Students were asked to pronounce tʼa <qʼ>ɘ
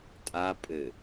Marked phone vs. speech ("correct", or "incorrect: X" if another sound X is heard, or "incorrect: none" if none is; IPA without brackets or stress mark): incorrect: pʼ